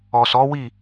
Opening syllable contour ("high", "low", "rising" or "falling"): low